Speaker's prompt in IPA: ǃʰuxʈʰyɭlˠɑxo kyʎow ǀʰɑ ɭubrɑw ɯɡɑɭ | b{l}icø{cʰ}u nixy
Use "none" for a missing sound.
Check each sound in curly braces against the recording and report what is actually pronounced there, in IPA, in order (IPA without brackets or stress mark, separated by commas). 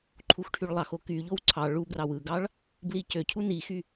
l, cʰ